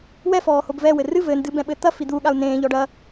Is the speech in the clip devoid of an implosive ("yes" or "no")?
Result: no